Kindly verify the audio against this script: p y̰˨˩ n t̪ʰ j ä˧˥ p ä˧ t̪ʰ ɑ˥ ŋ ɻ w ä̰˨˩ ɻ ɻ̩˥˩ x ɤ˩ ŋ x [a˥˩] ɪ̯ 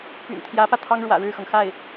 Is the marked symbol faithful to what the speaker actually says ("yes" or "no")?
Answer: yes